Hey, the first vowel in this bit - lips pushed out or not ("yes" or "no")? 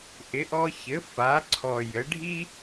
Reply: no